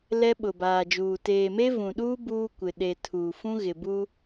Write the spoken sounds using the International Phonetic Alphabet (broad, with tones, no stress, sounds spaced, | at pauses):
l ɛ˦ ɓ ʊ˨ b aː˨ d͡ʒ uː˨ t eː˨ m e˦ v ũ˨ ɗ uː˦ b uː˦ kʷ ɪ˨ ɗ e˨ tʰ uː˨ f ũ˦ ɣ ɪ˨ b u˦